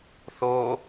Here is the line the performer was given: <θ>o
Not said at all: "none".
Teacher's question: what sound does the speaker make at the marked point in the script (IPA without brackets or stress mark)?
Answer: θ